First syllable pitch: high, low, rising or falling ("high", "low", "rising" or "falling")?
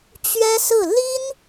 high